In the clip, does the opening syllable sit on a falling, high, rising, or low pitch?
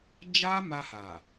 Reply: high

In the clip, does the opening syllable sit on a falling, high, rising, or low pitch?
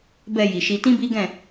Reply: low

